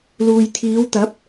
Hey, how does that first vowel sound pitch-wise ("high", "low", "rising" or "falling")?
low